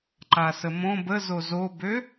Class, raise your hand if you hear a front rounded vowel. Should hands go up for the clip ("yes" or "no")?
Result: yes